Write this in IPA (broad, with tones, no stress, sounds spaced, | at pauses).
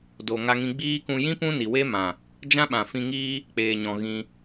d o˨ ŋ a˧ ŋ ĩ˧ ɡ͡b iː˦ k ũ˧ j ĩ˦ p ũ˦ n i˨ w e˦ m ã˨ | d͡ʒ ã˦ ɓ ã˨ f ĩ˧ ŋ iː˦ | k͡p eː˨ ɲ ɔ̃˨ ɣ ĩ˧